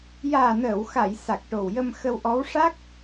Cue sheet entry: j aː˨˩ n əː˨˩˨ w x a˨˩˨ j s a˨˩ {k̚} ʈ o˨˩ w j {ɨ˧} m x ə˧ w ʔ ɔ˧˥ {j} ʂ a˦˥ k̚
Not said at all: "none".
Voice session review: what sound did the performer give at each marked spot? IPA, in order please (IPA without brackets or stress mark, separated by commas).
k̚, ə˧, w